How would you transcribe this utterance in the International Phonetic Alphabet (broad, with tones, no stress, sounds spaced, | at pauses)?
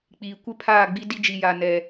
k͡p iː˨ kʷ ɪ˦ pʰ aː˦˨ ɡ͡b i˦ d i˦ d͡ʒ i˨ j a˨ n ɛ˨